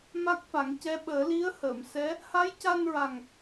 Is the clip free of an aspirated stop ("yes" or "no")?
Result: yes